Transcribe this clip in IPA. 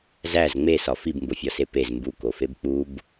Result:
z æ z ŋ͡m e s ɒ f i b m b o fʲ ɒ s e p e z m b u k o f e b k͡p u b

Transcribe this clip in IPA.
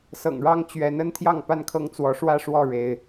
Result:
s ɤ̰˨˩ ŋ ɻ ɑ˦ ŋ t͡ɕ ɥ ɛ˨˦ n ə˦ n t̪ʰ j ɑ˥˨ ŋ p a˥˨ n kʰ ɤ˦ ŋ t͡s w ɔ˨˦ ʂ w ä˥˨ ʂ w ɔ˥˨ ɻ e˦ ɪ̯

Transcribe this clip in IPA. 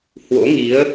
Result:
h w o̰˧˥ ŋ i˨˦ ə̯

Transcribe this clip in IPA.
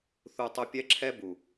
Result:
θ u˧ tˤ u˧ pʲ ɛ˦ ǁʰ ɛ˦ b u˨

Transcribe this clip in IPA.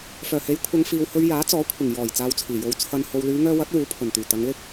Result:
f œː˨˩ h e˨˥ j kʷʰ ɐ˨˧ ŋ f iː˨ w h ɵ˧ ɥ j aː˨˥ t͡s ɔː˨˥ kʷʰ ɪ˨˩ ŋ j ɔː˨˩ j t͡s aː˧ w t͡sʰ iː˨˩ j o˧ w t͡sʰ ɐ˧ n h o˨ w l yː˨˧ ŋ œː˧ w ɐ˨˥ t̚ w uː˨˥ pʰ ɵ˨˩ n t̪ yː˨˩ t̪ ɐ˨˧ ŋ l ɪ˥ k̚

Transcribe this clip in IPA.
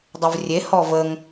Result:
dˤ ə v rʲ e h ɔ v ə ŋ

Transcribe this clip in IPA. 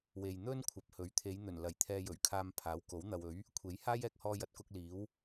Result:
w e˨ j n̪ ɵ˥ n kʷʰ ɐ˨ p̚ h ɵ˨˥ ɥ t̪ʰ e˨˧ j n̪ ɵ˨˩ n l ɐ˨˩ j t̪ʰ ɛː˧ j ɵ˨˩ ɥ kʰ aː˧ m pʰ aː˨˥ w k o˨˥ w n̪ ɐ˨ w ɵ˨˥ ɥ | kʷʰ e˨˥ j h aː˥ j ɛː˨ k̚ h ɔː˧ j ɐ˨˥ t̚ k ʊ˧ k̚ l iː˨˥ w

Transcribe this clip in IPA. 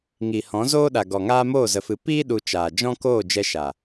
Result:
ŋ i˨ h ɔ̃˨˦ z oː˦ ɗ a˨ ɡ ɔ˨ ŋ aː˦ m oː˦˨ z ə˨ f ɨ˨ p iː˦ ɗ u˧ t͡ʃ aː˨ d͡ʒ ɔ̃˦ k oː˦˨ d͡ʒ ɛ˧ ʃ a˨

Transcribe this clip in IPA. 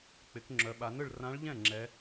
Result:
k͡p ɪ˩˧ k ŋ͡ǁ œ˩˧ ɓ a˩˧ n ɯ˥˩ ɭ r ã˧˥ ɭ ʎ ɛ̃˥˩ ŋ͡ǁ ɛ˩˧

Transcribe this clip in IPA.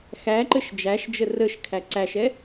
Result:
x æ ǃ ɘ ʃ d͡ʒ æ ʃ d͡ʒ ə r ə ʃ kʰ æ ǀ æ ʃ ɛ

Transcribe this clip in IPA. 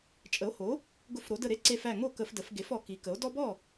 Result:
t͡ʃʼ ə˩˥ o̯ h o˩˥ | ɡ ʊ˧˩˧ f ɾ o˩˧ d ə˧˩ ɾ e˦ ǀ e˧˩ f æ˧˩ ŋ o˥˩ k ə˧˩˧ f d ə˩˧ f ɡ e˩˥ f ɔ˩˧ k i˩˧ k ə˩˥ o̯ d ɔ˦ b ɔ˥˩

